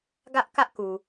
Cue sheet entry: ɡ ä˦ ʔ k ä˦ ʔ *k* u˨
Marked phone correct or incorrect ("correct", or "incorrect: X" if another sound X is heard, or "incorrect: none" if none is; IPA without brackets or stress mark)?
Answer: correct